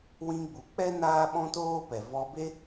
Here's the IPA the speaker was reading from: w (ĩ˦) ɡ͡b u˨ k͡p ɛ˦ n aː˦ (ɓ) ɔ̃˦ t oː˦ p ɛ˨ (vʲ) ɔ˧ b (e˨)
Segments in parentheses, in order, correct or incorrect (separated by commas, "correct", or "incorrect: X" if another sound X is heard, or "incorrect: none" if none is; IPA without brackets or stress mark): incorrect: ĩ˧, correct, incorrect: v, incorrect: e˦